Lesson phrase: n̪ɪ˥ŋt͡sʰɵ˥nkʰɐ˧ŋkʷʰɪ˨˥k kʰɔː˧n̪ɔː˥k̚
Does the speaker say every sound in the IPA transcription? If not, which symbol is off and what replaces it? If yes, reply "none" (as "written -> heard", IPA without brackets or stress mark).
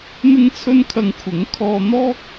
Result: k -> ŋ